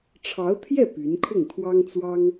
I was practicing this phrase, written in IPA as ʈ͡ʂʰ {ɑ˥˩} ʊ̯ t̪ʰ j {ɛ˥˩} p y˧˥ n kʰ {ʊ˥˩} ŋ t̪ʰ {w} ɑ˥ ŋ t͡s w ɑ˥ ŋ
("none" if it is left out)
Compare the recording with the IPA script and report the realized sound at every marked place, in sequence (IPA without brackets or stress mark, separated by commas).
ɑ˧˥, ɛ˥˩, ʊ˥˩, w